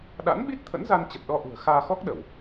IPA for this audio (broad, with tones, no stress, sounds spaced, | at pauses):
ɗ a̰˧˥ n ɓ i˦˥ t̚ t̪ʰ ə̰˧˥ n z a˧ n t͡ɕ ə˨˩ t̚ ɗ ɔ˧ ʔ ṳ˨˩ ə̯ x aː˧ x ɔ˦˥ k̚ ɗ ə˧˩˨ w